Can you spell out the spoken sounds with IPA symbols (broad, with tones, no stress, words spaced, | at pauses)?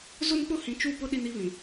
zʊ˦nk͡pʊ˦ hĩ˨ t͡ʃu˦˨pʊ˦ ɗi˦ni˦βĩ˨